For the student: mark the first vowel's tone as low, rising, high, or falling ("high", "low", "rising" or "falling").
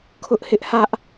high